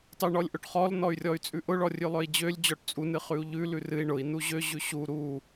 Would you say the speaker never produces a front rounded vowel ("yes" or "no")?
no